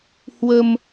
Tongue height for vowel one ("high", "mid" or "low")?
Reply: mid